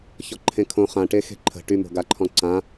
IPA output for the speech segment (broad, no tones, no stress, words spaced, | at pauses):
çɔǃʰẽkʰõ χãʈe xe̤ǃʰə̤ ʈymo̤ɡaǃʰɔ̃ ǀã